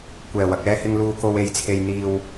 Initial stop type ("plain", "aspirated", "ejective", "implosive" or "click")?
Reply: plain